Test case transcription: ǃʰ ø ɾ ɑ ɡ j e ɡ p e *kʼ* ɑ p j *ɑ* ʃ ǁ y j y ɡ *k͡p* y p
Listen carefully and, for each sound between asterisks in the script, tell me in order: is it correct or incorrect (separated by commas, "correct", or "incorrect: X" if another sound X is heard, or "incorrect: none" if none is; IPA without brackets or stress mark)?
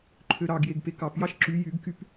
incorrect: k, correct, incorrect: k